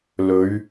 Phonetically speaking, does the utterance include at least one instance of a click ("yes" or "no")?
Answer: no